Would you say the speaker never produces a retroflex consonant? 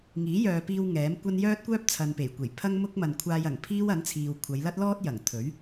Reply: yes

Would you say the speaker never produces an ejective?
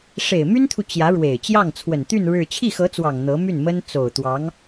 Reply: yes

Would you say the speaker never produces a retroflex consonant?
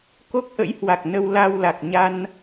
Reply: yes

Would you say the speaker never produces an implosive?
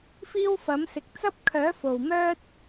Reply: yes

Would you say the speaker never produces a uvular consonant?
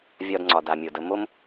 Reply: yes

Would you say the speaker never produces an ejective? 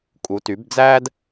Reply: no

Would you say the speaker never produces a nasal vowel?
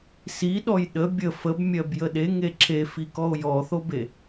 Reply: yes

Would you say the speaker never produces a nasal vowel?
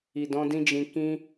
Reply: no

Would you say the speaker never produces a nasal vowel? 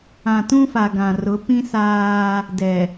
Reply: no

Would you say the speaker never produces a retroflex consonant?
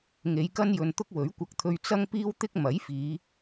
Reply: yes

